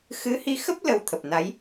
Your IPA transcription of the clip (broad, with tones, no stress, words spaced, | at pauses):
xɨ˨˦hi˧xə˦˥p̚ lə˧wt̪ʰə˨˩p̚na˨˦j